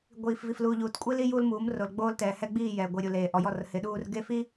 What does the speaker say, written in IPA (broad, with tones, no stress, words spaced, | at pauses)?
ɡʷiː˨fvi˨fluː˨ʎuː˨t kʷʼi˦li˦ juː˦lmuː˨˦mro˨l ɡ͡boː˦ltɛː˨ hɛ˦ɡ͡biː˦˨ jɛː˨ɡʷi˨ɾʲu˨ leː˨ʔɔ˨jɔ˦˨r hɪ˨˦ɗuː˦r ɡe˦˨fi˦